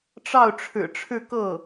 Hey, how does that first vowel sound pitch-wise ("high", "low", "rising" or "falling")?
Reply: falling